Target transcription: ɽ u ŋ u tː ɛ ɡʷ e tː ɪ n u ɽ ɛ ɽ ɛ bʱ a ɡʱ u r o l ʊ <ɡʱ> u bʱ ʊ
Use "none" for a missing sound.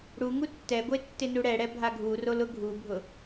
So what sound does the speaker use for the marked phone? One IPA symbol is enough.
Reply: ɡʱ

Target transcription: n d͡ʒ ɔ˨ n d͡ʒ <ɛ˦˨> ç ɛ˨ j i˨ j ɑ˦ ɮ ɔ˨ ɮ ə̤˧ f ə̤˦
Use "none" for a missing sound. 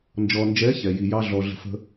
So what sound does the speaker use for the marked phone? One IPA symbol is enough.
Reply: ɛ˨˦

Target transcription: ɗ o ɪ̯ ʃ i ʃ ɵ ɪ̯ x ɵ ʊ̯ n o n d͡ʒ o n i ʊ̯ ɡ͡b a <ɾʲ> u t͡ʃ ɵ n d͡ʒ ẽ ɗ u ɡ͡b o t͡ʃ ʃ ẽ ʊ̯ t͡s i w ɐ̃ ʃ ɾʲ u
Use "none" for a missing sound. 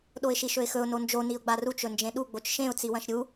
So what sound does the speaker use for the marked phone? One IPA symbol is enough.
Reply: r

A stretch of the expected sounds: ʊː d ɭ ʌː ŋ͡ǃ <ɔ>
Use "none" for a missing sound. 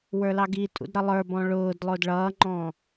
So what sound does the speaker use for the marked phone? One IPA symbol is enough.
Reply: ɔ̃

